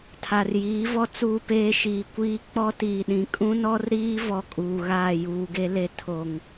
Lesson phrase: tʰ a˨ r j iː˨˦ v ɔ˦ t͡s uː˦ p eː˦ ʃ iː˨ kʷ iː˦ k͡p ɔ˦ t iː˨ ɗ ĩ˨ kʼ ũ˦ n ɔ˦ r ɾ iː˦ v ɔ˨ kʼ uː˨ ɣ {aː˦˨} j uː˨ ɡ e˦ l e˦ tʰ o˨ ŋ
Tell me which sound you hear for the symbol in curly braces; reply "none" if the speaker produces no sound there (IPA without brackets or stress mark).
aː˦˨